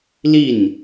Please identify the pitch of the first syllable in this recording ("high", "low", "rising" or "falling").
falling